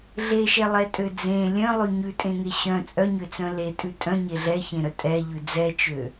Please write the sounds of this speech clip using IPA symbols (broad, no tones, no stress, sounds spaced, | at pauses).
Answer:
ɮ e ʃ ɛ lˠ ɛ tʼ ø d͡z ẽ lʲ œ̃ lˠ ʉ ɲ ʉ tʼ ẽ ŋ e ɕ œ̃ t͡sʼ œ ɲ ø t͡s œ̃ l e tʼ ʉ tʼ œ̃ ɲ e ɮ ɛ ç ẽ ɾ œ tʼ ɛ ʎ ʉ d͡z ɛ t͡ʃ ø